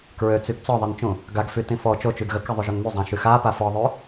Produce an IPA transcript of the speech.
k ɹ ø t͡s y ɡ t͡s ɔ ðˤ e n t͡ʃ ũ | ɡ a ɡ f y t ĩ f ɔ t͡ʃ o t͡ʃ y ɡ ɣ ə k ɛ ðˤ u ʒ o n m y zˤ ã ʃ y x a p a f ɔ ðˤ ø

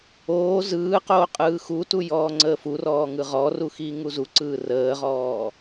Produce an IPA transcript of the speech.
oː z ɯː q oː qʼ ɯː x u t u j ɔː ŋ͡ǀ əː f u r ɔː ŋ ɯ ʁ ɔ r u x iː ŋ u z u ǀ ɯː r əː ʁ ɔː

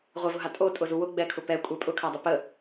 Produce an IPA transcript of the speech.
ʁʷ ɛ v ʊ ɦ a tʼ o tʼ ʊ z u w ʊ ɡ͡b ɛ kʰ ʊ p ɛ kʷʼ ɛ pʼ ʊ kʰ a dˤ ʊ p ə

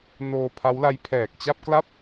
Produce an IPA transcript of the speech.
n oː˧ pʰ a˦˥ w l a˦˥ j pʰ ɛː˨˩ k̚ t͡ɕ a˥˩ p̚ k l a˥˩ p̚

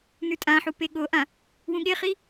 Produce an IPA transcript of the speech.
n ʉ tʼ ã ħ u p e ɠ o ʔ ã | w ũ ɠ e χ i

